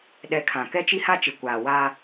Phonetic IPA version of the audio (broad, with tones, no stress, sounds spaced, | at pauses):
ɗ ɛ˨˦ kʰ ã˨ k ɛ˦ t͡ʃ i˦ h a˦ t͡ʃ ɪ˨ kʷ aː˨ w aː˦